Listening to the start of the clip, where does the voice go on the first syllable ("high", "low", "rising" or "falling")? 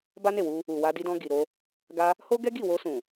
high